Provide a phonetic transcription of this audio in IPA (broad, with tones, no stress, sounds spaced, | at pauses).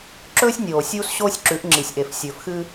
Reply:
ǁ ɵː˦ sʲ nʲ oː˨ sʲ uː˦ s ɕ oː˦ sʲ ǁ ʉ˨˦ ʔ ŋ͡ǁ i˨ sʲ ʔ e˨ f sʲ ɵː˨ f x ɨː˦